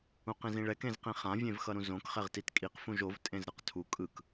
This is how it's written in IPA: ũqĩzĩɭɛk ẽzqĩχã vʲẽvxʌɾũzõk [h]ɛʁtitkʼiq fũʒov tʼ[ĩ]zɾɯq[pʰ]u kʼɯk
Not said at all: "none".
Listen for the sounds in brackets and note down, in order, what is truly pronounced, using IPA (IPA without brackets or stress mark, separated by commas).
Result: χ, ẽ, tʰ